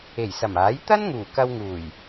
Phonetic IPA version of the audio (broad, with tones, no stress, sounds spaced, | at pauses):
e˨˩ j s ɐ˨˩ m aː˨˥ j t̪ ɐ˥ n ŋ uː˨˩ k ɐ˧ w ŋ uː˨˩ j